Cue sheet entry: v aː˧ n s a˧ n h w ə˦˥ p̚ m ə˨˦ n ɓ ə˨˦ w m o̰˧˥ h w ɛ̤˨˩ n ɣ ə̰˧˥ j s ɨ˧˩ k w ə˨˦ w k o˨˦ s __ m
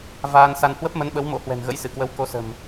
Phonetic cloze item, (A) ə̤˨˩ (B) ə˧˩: A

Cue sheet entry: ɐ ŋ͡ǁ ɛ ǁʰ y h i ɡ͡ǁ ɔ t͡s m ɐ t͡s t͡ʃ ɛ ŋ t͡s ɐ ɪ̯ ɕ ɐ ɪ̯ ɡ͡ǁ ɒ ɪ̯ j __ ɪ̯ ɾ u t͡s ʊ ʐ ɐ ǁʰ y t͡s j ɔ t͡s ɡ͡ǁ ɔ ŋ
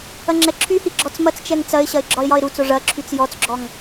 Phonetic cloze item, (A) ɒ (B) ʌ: A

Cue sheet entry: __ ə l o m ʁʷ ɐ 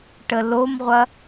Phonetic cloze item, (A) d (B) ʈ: B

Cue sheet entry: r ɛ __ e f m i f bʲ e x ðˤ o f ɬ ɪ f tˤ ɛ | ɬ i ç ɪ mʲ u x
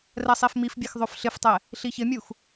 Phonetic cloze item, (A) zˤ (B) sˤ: B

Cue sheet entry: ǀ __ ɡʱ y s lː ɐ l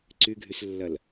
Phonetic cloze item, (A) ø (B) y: B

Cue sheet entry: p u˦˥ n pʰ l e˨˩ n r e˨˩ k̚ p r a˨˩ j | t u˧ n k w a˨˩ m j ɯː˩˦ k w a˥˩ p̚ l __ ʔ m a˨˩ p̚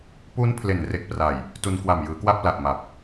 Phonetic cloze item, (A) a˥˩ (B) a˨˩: B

